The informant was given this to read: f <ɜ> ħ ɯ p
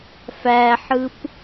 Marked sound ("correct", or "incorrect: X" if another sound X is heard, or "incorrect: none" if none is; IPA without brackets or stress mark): incorrect: æ